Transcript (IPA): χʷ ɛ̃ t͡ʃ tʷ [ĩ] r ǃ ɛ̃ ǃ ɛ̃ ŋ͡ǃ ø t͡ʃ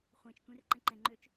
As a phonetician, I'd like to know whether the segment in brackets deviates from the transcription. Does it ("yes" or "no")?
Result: yes